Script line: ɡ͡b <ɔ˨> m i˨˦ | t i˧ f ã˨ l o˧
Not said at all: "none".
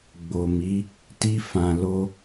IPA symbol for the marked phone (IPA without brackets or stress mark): o˨